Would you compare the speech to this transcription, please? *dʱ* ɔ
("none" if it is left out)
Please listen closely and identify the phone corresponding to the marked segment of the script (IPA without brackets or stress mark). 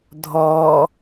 dʱ